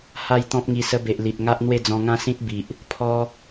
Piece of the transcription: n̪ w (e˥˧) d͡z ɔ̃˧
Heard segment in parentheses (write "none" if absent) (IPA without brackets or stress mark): e˥˧